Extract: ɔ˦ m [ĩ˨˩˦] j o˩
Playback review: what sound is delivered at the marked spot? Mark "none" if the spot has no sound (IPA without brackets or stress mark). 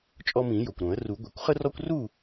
ĩ˨˩˦